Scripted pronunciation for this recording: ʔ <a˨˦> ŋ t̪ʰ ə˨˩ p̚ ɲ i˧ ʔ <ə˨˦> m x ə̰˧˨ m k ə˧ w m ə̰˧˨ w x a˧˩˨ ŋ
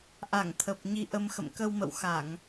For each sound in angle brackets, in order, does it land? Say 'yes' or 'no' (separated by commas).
no, no